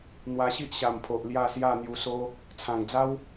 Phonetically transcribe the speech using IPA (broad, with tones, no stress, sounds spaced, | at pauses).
n̪ w a˧ ɕ i˦ ʔ ɕ a˨˩ m pʰ o˨ ʔ l j a˥˧ s j a˥˧ n̪ j u˧ s o˦ | t͡sʰ ã˨˩ ŋ d͡z a˦ w